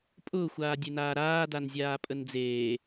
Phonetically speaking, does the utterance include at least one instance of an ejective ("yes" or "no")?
yes